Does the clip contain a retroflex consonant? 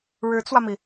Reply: yes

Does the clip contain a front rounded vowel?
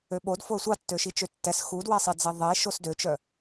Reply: yes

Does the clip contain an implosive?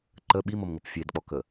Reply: yes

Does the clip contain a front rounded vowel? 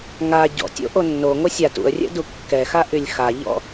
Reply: yes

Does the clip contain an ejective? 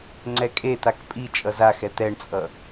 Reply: yes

